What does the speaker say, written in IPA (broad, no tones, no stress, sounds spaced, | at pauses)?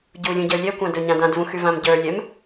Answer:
ɟ u lʲ ũ ɟ ə˞ lʲ ɛ kʷ ã d ɵ ɲ ã d ã d v ũ x y v ã m ɟ ə˞ lʲ ɛ m